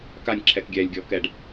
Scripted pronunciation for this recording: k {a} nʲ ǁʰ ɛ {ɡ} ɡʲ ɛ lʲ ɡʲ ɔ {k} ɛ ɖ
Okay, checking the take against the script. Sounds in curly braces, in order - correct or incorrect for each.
correct, incorrect, correct

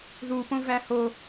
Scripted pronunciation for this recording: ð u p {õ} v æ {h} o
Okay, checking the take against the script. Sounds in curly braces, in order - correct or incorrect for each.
correct, correct

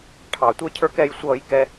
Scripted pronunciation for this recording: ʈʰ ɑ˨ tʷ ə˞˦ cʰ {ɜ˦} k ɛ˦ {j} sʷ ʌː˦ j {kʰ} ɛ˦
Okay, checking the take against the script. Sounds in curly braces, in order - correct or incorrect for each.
incorrect, correct, incorrect

